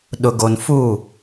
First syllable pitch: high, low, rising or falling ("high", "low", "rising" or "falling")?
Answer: low